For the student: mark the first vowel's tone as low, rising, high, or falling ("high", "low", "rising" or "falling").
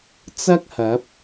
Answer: high